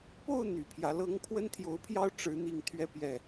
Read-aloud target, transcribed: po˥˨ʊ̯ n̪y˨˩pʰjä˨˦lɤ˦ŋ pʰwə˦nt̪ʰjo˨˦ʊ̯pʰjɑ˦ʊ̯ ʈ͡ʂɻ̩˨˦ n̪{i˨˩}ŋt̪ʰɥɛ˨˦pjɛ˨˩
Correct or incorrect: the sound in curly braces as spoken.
correct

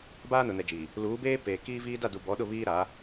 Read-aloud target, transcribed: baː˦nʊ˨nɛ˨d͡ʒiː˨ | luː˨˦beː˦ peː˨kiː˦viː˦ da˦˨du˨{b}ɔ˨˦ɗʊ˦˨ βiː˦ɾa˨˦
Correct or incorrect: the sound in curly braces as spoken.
correct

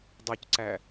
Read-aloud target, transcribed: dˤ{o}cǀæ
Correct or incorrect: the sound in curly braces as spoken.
correct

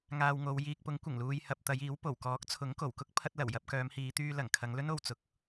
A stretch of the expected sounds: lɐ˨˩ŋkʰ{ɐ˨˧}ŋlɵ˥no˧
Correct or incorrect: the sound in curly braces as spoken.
correct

